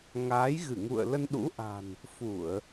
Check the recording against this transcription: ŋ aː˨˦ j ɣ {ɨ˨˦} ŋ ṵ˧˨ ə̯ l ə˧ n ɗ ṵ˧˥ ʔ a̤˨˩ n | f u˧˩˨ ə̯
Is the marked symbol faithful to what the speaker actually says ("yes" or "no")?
no